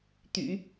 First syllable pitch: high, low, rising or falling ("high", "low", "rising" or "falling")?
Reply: low